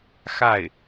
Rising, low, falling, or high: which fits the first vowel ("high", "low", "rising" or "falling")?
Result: falling